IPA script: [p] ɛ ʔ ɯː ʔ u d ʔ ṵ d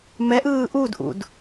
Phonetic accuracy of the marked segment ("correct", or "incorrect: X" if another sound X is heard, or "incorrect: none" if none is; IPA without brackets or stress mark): incorrect: m